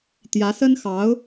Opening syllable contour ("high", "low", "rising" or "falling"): rising